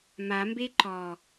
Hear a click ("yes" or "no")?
yes